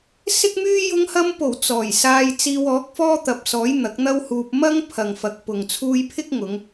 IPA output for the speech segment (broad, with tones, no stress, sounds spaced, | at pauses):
s ɪ˥ k̚ m yː˥ j ʊ˧ ŋ h ɐ˧ m p o˨˩ w t͡s ɔː˨˩ j s aː˧ j t͡s iː˧ w ɔː˨˥ k̚ f ɔː˥ t̪ ɐ˨ p̚ s ɔː˨˥ j n̪ ɐ˨˥ k̚ n̪ ɐ˥ w h uː˧ p̚ m ɐ˥ ŋ pʰ ɐ˨ ŋ f ɐ˨ k̚ p ʊ˨ ŋ t͡sʰ uː˧ j pʰ ɪ˥ k̚ ŋ ʊ˨˧ ŋ